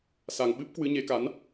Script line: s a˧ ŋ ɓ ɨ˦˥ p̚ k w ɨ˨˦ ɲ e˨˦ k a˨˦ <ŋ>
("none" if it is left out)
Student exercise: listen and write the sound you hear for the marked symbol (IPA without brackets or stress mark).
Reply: n